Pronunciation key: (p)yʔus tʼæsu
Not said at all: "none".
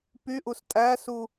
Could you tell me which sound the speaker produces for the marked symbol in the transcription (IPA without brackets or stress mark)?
p